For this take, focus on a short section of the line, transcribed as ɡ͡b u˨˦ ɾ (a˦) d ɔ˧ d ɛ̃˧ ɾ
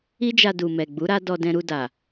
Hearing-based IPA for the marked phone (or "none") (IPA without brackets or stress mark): a˦